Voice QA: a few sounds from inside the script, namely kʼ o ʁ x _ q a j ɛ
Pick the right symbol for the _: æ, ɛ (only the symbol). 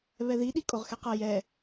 ɛ